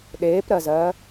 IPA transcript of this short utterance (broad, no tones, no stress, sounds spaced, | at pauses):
ɗ eː p ɾ ɜ z ɜː